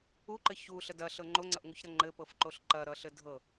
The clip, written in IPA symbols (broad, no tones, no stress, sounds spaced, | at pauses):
u ǃ ɘ ç u ɬ ə d ɐ ɬ ɤ ŋ͡ǃ o ŋ͡ǀ ʌ ʔ ŋ u ç ɾ ʌ ŋ͡ǃ ɘ p ɤ f ǃ o ɬ ǃ ɐ ɾ ʌ ɬ ɘ dʱ ɤ